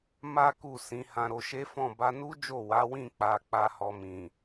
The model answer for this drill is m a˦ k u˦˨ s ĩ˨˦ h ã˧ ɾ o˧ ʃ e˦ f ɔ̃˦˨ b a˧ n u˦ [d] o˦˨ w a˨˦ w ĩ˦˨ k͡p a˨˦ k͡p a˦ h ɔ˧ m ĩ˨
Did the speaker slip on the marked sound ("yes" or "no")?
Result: yes